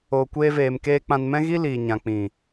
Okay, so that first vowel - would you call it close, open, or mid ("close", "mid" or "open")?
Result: mid